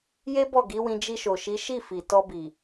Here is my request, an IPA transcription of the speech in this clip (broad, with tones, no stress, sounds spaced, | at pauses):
j e˦ b ɔ˦˨ ɡ i˨˦ w ĩ˧ d͡ʒ i˧ ʃ o˨ ʃ i˨˦ ʃ i˦˨ f i˨ t ɔ˧ b i˨